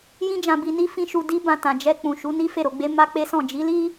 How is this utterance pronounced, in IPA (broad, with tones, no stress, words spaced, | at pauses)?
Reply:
jĩ˦d͡ʒã˧ bi˧ni˦ fĩ˦ʃu˧ di˦bã˧tã˨ d͡ʒɛ˧ k͡pũ˨ ʃu˨˦ni˦ fe˦˨ɾo˧ɡ͡be˦ ma˦k͡pe˦sɔ̃˦˨ d͡ʒi˨˦li˦